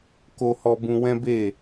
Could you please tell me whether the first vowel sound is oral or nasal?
oral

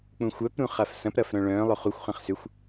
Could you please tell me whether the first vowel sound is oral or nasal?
nasal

